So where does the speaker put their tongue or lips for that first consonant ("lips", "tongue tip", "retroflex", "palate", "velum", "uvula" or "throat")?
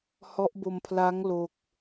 throat